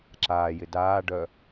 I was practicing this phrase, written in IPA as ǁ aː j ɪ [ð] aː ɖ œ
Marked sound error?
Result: yes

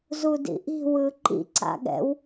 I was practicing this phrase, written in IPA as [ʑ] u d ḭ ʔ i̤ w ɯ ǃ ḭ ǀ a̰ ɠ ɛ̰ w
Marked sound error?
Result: yes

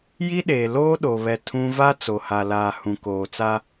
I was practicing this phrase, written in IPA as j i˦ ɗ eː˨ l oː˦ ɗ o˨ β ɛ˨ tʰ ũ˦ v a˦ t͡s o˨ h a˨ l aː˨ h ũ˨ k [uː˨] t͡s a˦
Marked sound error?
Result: yes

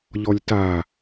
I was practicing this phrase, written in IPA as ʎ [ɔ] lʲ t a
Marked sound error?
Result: no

